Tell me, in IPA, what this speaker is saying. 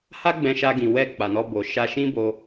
ha˦ɡ͡bɛ̃˧ʃa˧ɡĩ˨ wɛ˧ k͡pa˨nɔ˧bo˨ ʃa˧ʃĩ˦bo˧

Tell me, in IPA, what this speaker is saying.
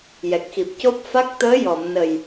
jɛ˨˩k̚xi˨˩p̚co˦˥p̚ fa˦˥k̚ t̪əː˧˥jɔ˨˩˨mnə˨˩j

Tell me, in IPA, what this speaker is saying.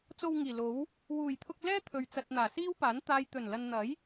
t͡so˧wŋiː˨˩lo˨˥w | wuː˨˩jt̪ʰʊ˧k̚ lɛː˥t̪ʰɵ˨ɥt͡sɐ˨t̚ n̪aː˨˩siː˥wpaː˨˥n t̪aː˨jt̪ɵ˨˩nlɐ˨nn̪ɐ˨˥j

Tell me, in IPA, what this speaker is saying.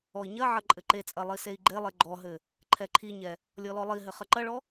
ɔi̯ɲɐʕɐ ǃʼɘǃet͡sʼɐ lˠisei̯ɡ͡ǃelˠe ɡ͡ǃɔɦɘ | ǃʰɛǃʰiɲɛ | lʲɔlɔlˠiɦɘ χɐǃɐɭɔ

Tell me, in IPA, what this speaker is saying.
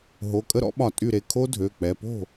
ɦo˩˧˩kʼə˦˥ɾɔ̰˦˥ɓɒ˧˩˧ tʼy˧˩ɾe˩˧˩ kʰo˦˥ dʱø˩˧˩ k͡pɛ˩˧˩ po̤˥˩

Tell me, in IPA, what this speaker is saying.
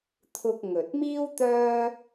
t̪ʰʊ˧k̚ŋɵ˨t̚miː˥w t̪œː˥

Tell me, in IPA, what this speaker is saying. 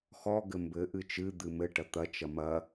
xɔ ɡɘmbɘ ʔɨt͡ʃɨ d̪ɨmɘ ʈɐt̪ɐ t͡ʃɐmɐ

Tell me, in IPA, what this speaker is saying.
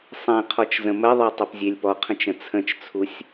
sˤẽqʰɔt͡ʃ zə̃məðˤɤ tˤʌpzʲelʲpɔqʰə̃t͡ʃ ə̃t͡sʰə̃t͡ʃt͡sʰusʲ

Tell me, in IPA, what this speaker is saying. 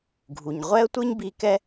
ɡʱu˩ɲ ʁʷɛ˥ə̯tʷɯ˥ɲbi˧ kɛ˥

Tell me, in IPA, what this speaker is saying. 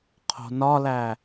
qʰo̤nɒlæ

